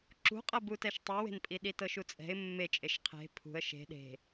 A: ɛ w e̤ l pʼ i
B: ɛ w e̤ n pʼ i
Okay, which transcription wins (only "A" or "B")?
B